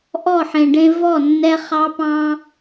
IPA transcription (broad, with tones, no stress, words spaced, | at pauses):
ʔɔ˦˨ħẽ˨ɖẽ˧ vɔ˦˨nːɛ˧ χɑ˦pɑ̃˦